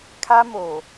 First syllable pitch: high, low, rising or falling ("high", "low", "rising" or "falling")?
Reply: high